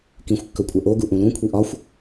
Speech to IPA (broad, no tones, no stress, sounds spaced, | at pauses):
k ĩ xʷ kː ɵ kʷʼ ɛ ʔ o ɡ u ʔ ũ l ũ kʷʰ i ʔ ɒ xʷ